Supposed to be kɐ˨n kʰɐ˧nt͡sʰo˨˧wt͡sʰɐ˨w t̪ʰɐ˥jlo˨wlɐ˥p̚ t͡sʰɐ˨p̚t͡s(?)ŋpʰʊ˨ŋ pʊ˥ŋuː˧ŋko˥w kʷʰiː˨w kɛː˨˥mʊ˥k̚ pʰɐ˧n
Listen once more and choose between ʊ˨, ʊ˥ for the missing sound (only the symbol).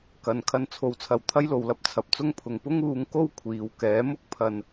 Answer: ʊ˥